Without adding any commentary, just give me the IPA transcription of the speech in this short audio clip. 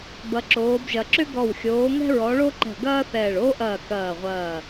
b ɐ˨˦ ǁ oː˨˦ b ʒ ɐ˨˦ ǁ ʏ˥ ɡ ɔ˧˩ w xʲ oː˨˦ ŋ ɛ̤˥ ɹ ɔ˨˦ ɭ o˥ ǃ ɛ̤˧˩ ɡ ɐː˥ θ ɛː˧˩ ɭ oː˥ ʔ ɐː˧˩ k ɐː˧˩ ʁʷ ɐː˧˩

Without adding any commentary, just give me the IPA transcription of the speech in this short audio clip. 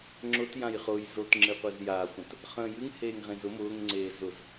ŋ͡ǁ ʊ t j ã j χ ʊː j z o t ŋ͡ǁ ɨ qʷ e z j a χʷ ə̃ t | χ ə̃ː j ɨ ŋ h eː ŋ ʁ ẽ z ʊ m ʊː ŋ ŋ͡ǀ eː z ʊ z

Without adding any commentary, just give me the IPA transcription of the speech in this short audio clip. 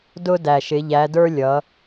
d ʊ˧ d æ˨˩ ʃ ɪ˩˧ ʎ æ˩˧ d ə˞˧ lʲ ʌ˩˧

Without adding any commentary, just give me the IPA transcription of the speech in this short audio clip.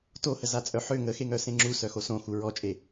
t o h ə z a t͡sʼ œ ħ ø ŋ ə x e ŋ œ s ẽ ŋ͡ǁ u s œ x o s õ x u ɹ ɔ t͡ʃʼ e

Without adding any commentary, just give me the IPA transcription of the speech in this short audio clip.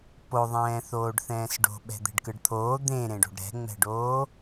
p o ðˤ ɛ̃ː θ oː ɖ θ ɛ̃ː s ɖ o̤ ɓ ɛ̤ d̪ e̤ ɖ k ɯ ɖ t̪ʰ oː d̪ ẽ ɾ ẽ ɖ o̤ ɖ ɾ ɛ̤ ŋ͡m ɛ̤ ɖ oː

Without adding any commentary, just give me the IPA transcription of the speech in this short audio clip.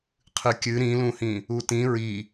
qʰ ɨ kʲ ɨ ɾ ĩ l ũ h ĩ | u t ĩ ɹ i

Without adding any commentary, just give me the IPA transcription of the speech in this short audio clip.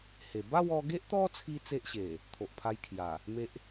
h e˨˩ b a˥˧ w ɔ˧ ɡ e˦ ʔ t̪ ɔ˦ t͡sʰ i˦ t͡s e˦ ʔ ɕ e˨˩ | t̪ʰ o˨ ʔ pʰ a˧ j kʰ j a˨˩ | m e˦ ʔ

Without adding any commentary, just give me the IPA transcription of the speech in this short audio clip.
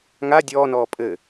ŋ a dʲ ɔː n ɔː pʼ ɘ

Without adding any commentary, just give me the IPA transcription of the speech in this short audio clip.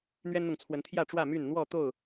n̪ ɥ ɛ˦ n n̪ ʊ˨ ŋ t͡sʰ w ə˨˦ n t̪ʰ j ä˥˨ ʈ͡ʂ w ä˥˨ m y˥˨ n n̪ w ɔ˥˨ t̪ o˥˨ ʊ̯

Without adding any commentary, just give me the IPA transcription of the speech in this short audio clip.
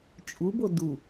t͡ʃʼ u b o d u

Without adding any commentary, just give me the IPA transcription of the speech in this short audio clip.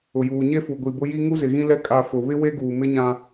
ʊ˨ j uː˨ ɲ e˦ f u˨ ɡʷ i˨ b ʊ˦ j i˦ ŋ u˦ z ɪ˨ ɣ ĩ˦ l ɛ˦ kʼ a˨ f ʊ˨ β ɪ˦ w e˦ ɡ uː˨ m ɪ˦ ɲ ã˦

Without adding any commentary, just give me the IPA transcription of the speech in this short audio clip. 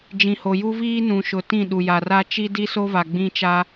d͡ʒ ĩ˨ h o˨ j u˦ v iː˦ n ũ˨ ʃ ʊ˨ t ĩ˦˨ ɗ u˨ j a˨ r a˦ t͡ʃ i˦ d i˦ s o˦ v a˨ ɡ͡b ĩ˦ t͡ʃ a˦

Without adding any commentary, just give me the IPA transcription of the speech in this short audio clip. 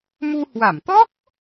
m u˧ h w a˧˩ m t̪ ɔ˦˥ k̚

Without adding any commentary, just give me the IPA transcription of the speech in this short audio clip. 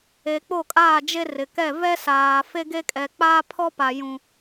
e˨ k͡p o˦˨ kʼ aː˦˨ d͡ʒ e˦ r ɪ˨ k ɛ˦˨ v ɛ˦ s aː˨ f e˦ ɡ e˦ kʼ ɛ˨ k͡p aː˦ pʰ ɔ˦ p a˨ j ũ˨

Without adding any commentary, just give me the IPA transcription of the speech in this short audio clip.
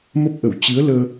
m ə˦˥ p̚ ʔ ə˧˩ w t͡ɕ ɨ˨˦ ə̯ l əː˧

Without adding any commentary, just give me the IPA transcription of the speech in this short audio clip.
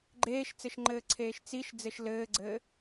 ɡ͡ǃ eː ʃ t͡s ɘ ʃ ŋ͡ǃ ɘː ǀʰ eː ʃ t͡s i ʃ d͡z ɘ ʃ l ɘː ɡ͡ǀ ɘː

